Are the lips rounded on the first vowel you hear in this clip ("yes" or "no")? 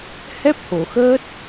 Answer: no